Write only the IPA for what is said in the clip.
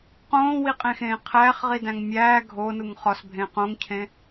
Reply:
qõːwiqʼẽxẽː qʰæːχʁidæ̃ŋ mʲæː ɡʱonuŋ χɒsbʱẽ qõŋcʰẽ

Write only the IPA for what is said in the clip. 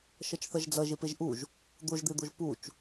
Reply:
ʃʌt͡ʃθʌʒd͡zʌ ʒepeʒʔuʒ | d̪oʒd̪ed̪oʒ put͡ʃ

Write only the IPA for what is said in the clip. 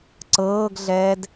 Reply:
ǀɤːɡɮɛːd

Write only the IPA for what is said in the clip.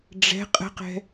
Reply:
ɖ͡ʐɛ̤ qʼə̤qɛ̤

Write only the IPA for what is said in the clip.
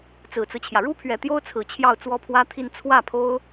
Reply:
t͡sɹ̩˨˩t͡sɹ̩˦t͡ɕʰjä˩ ɻu˥pʰɥɛ˨˩ t̪jo˥ʊ̯t͡sʰɹ̩˨˩ t͡ɕʰjɑ˥˩ʊ̯t͡swɔ˥pʰwä˥t̪ʰi˥˧n t͡sʰwä˥˩pʰo˥ʊ̯

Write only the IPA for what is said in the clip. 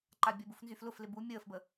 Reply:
ǃabʲəbuf nzyflʊflɪ bu mʲəːfbə

